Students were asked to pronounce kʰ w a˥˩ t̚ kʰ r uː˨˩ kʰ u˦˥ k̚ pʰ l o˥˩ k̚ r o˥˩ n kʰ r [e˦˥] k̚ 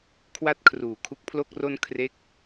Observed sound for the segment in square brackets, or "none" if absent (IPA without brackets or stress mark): e˦˥